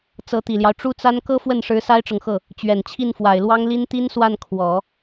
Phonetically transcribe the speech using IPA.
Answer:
t͡s ɤ˧˥ t̪ i˨˩ l j ɑ˦ ʊ̯ ʈ͡ʂ u˥ t͡s a˥ n k ɤ˥ f w ə˥˩ n ʂ ɻ̩˧˥ s a˥ ɪ̯ ʈ͡ʂ ɤ˨ ŋ x ɤ˥˩ | t͡ɕ ɥ ɛ˨˩ n t͡ɕʰ i˥˩ n f w a˨˩ ɪ̯ l w ɑ˥ ŋ l i˥ n t̪ i˥ n s w a˥˩ n kʰ w ɔ˨˩˦

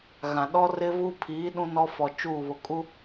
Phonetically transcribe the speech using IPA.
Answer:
ɣ ã˨ ɗ ɔ˦ r ɪ˦ v u˦ pʰ iː˨˦ ɗ ũ˦ n ɔ˦ f ɔ˨ t͡ʃ uː˦˨ β ʊ˨ kʼ u˦

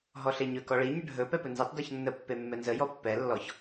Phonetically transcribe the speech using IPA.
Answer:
ɦ ɔ ɬ e ɲ ɵ k ɔ ɭ i ɲ ə ɖʱ ɵ p ɛ p ɵ n z e tˤ d ɔ ç nː ə pː e mː ɛ n z ə j ɔ pː ɛ lː ɔ ç

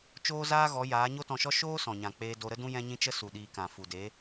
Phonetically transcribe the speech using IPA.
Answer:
t͡ʃ oː˦ z aː˦ ɣ ɔ˨˦ j aː˨˦ ɲ o˦ t ɔ̃˧ ʃ ɔ˦ ʃ oː˦ s ɔ̃˨ ɲ ã˨ k͡p eː˧ d o˧ ɾ ə˦ d ũ˦ j ɛ̃˦ ɲ ĩ˦ t͡ʃ ə˦ s u˨ ɗ iː˨ k ã˨ f u˨ d e˨˦

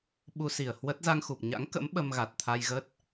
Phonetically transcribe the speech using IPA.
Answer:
ɓ u˧ s i˧˩ ə̯ h w ə˦˥ t̚ z a˧ ŋ x u˨˩ p̚ ɲ a̰˧˥ ŋ k ə̰˧˥ m ɓ ə˧ m ɣ a˨˩ t̚ t̪ʰ a˧ j ɣ ə˦˥ t̚

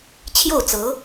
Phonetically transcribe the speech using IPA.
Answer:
t͡ɕʰ j o˥˩ ʊ̯ t͡s ɤ˧˥

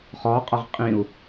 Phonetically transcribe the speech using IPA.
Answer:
χ ɔ qʼ ʌ ʁ qʼ ĩ u̯

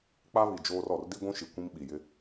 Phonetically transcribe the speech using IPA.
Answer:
k͡p a˦ β i˨ d͡ʒ oː˦ r ɔ˨ r d i˦ ɡʷ ũ˦ ʃ i˨ kʷ ĩ˦ m ɓ i˨ j ɪ˦

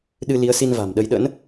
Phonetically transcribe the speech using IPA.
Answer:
ɗ ɨ˧ l i˨˦ ə̯ s i˧ n v a̤˨˩ m ɗ ə˧ j ɗ ə̰˧˥ n

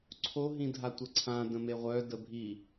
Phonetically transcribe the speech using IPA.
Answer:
ǀʰ o ɦ ĩ dʱ a tʷ ə ǀʰ ã d ə̃ m e ʁʷ œ d ə bʱ i

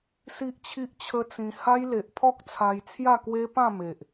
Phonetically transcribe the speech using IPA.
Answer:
s i˦ ʔ t͡ɕʰ i˦ ʔ t͡ɕʰ ə˦ t͡s ĩ˧ h a˦ j l e˨ ʔ pʰ ɔ˦ k̚ t͡sʰ a˧ j t͡sʰ j a˥˧ k w e˦ p ã˥˧ m e˨ ʔ

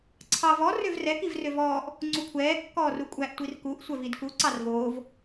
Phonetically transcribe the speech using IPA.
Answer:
ǀʰ ɑ v ɔ r ø v r ɛ k i v r ø v ɔː ʔ | ŋ͡ǀ u kʷʰ ɛː kː ɔː r u kʷʼ æ ʔ tʷ i r k u ʔ sʷ œ v i d k u ǀ ɑ r v oː v

